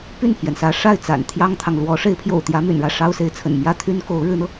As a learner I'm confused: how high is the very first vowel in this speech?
high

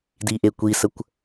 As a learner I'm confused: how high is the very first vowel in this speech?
high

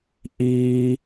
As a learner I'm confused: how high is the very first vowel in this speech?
high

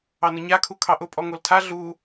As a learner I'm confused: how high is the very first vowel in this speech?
low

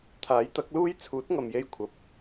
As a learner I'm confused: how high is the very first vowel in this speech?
low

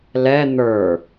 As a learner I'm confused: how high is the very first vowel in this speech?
mid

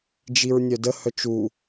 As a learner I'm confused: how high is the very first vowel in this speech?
high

